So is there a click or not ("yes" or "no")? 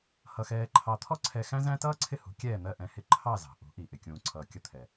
yes